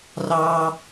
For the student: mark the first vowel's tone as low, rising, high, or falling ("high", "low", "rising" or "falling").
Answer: high